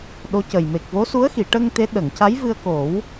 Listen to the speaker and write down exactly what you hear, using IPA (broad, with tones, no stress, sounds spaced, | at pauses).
ɗ o˧˥ c ə˨˩ j m e˨˩ k̚ v o˧˥ s u˧˥ ə̯ x i˨˩˨ ʈ ə˧ ŋ t̪ e˧˥ ɗ ə˨˩˨ ŋ c a˧˥ j v ɨ˧ ə̯ k o˨˩˦ w